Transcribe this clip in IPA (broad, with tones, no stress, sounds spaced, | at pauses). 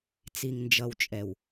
t͡s i˨ ŋ n d͡ʒ ʌ˨ w t͡ʃʼ ɛ˨ w